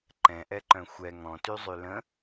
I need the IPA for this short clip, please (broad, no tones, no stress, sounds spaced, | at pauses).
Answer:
ǃ ɛ̃ ʔ ɛ ǃ œ̃ xʷ ɛ ŋ ɔ̃ t y zˤ y l ə̃